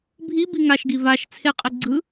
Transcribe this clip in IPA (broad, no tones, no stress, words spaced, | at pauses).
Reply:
bʱibi ŋaʃɡi vaʃ t͡sʰeqʼe ɡ͡ǀɯ